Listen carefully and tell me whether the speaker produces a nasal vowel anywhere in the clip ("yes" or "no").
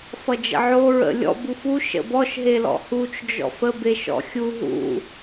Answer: no